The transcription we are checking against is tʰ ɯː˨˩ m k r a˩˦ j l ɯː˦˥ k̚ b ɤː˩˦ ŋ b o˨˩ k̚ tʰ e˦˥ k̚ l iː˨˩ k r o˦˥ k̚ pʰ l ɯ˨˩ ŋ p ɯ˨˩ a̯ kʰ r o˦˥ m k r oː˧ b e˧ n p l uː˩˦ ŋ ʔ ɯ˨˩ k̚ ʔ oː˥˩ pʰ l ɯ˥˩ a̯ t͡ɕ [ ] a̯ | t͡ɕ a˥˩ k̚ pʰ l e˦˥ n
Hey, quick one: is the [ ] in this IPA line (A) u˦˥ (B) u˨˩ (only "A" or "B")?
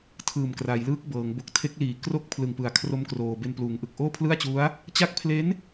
A